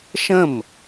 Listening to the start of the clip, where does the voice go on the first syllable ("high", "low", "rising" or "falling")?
falling